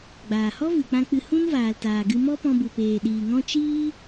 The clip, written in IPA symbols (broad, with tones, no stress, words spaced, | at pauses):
ɡ͡baː˨hɔ˦ vɨ˨k͡pã˧k͡pɨ˧ hũ˦nvaː˨ltaː˨ɡɨ˧ mɔ˦ pɔ̃˧bu˨peː˨ ɗiː˨ŋɔ̃˦ t͡ʃiː˦